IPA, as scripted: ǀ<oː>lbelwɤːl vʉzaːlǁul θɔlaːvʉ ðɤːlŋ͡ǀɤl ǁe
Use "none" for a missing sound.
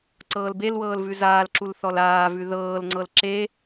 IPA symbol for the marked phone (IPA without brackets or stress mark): ɤː